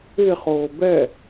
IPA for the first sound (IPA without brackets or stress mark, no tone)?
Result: ɪ